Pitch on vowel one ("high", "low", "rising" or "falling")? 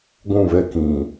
falling